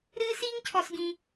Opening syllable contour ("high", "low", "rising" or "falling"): high